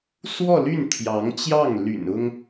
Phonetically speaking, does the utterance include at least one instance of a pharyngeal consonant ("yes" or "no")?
no